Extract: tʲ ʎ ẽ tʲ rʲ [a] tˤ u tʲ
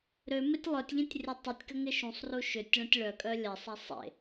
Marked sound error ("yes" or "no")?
yes